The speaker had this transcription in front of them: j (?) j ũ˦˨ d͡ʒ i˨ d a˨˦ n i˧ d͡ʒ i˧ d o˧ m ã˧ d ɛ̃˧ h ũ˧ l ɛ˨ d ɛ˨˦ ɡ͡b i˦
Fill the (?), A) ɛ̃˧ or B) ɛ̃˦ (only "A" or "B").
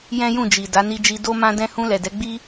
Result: B